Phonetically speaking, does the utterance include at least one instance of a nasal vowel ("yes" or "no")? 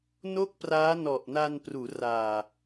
no